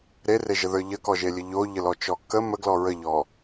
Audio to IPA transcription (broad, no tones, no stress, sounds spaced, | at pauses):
ɾ e r e ʒ ə ð ə˞ ʎ ə k ɔ ʒ e lʲ ə ʎ o ʎ ə l ɔ t͡ʃ ɔ k ə m ə ɡ l ɔ ɹ ə ʎ ɔ